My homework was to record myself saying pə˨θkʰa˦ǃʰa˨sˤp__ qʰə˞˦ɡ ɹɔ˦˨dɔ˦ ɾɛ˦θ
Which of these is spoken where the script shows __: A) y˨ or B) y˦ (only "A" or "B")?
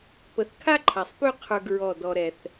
B